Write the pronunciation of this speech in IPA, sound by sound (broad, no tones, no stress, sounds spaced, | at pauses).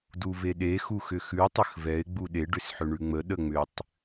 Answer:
d u v e ɗ e x u x ʏ x ʉ tˤ ə x v ɛ ɪ̯ ɡ͡b u ɗ e ɖ ʏ s ħ ʏ ɳ ʉ ŋ͡m ə ɗ ə ŋ͡m ʏ tˤ